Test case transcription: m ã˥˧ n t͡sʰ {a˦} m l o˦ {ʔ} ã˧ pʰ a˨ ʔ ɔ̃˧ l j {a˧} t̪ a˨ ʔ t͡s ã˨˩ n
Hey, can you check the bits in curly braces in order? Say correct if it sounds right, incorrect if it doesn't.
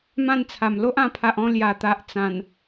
incorrect, correct, incorrect

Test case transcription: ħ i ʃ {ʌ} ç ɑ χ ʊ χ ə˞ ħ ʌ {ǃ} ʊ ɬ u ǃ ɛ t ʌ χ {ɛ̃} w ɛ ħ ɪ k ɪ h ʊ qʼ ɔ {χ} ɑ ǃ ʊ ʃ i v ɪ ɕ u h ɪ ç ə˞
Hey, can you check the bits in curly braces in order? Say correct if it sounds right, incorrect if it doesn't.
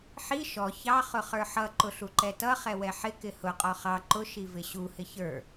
incorrect, correct, incorrect, correct

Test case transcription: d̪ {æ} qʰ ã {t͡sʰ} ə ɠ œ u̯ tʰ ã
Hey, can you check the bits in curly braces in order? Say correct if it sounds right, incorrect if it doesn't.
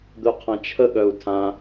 incorrect, incorrect

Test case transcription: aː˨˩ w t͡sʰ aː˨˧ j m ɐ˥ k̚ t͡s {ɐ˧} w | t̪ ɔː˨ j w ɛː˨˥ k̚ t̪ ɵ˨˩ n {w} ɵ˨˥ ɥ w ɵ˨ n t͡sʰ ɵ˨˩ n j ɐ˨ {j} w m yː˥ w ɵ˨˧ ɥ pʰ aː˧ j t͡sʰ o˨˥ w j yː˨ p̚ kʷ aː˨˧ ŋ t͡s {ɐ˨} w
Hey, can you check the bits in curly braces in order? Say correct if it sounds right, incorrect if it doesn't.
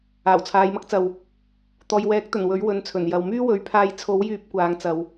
incorrect, correct, incorrect, correct

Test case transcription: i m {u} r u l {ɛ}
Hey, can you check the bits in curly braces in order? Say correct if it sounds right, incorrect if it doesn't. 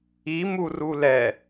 correct, correct

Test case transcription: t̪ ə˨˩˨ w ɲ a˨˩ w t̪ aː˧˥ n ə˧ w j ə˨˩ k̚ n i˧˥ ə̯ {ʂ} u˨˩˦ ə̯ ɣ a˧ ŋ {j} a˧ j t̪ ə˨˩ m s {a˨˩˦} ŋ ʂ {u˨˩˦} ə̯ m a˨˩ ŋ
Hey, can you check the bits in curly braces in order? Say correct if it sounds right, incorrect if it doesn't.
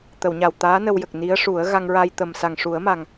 correct, incorrect, incorrect, correct

